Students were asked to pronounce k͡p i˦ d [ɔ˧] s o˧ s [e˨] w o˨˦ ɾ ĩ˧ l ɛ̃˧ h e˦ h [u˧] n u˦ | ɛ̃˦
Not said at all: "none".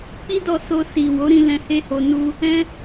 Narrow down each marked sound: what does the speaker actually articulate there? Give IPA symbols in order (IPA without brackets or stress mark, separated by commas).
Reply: ɔ˧, i˨, o˧